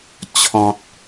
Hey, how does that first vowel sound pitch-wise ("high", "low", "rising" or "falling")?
low